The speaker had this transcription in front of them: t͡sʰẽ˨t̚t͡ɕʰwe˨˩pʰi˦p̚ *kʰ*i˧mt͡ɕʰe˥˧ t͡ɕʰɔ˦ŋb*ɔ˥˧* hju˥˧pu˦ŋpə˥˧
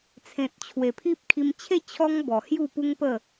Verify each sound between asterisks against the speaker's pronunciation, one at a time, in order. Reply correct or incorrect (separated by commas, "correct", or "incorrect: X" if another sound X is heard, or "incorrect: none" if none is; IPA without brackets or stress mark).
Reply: correct, incorrect: ɔ˨˩